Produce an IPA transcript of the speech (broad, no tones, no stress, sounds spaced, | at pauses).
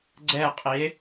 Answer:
ɡ͡ǀ ɛ qʼ i e̯